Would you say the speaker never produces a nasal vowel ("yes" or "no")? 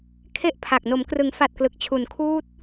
yes